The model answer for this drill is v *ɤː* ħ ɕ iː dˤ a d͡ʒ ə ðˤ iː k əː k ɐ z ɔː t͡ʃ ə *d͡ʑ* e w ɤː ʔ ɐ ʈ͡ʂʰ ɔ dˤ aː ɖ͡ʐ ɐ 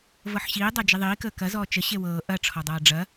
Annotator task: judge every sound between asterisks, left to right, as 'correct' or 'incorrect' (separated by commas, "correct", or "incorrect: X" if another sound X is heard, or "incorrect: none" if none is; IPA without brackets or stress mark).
incorrect: ɤ, incorrect: ɕ